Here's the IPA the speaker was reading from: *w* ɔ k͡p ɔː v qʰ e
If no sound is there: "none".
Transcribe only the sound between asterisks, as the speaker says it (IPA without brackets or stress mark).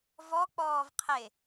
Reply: v